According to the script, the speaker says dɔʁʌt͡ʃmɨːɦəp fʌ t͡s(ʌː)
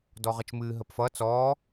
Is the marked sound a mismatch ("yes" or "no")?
yes